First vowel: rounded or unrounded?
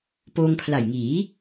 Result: rounded